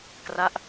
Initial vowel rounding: unrounded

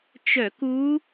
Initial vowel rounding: rounded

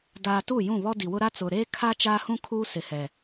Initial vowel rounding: unrounded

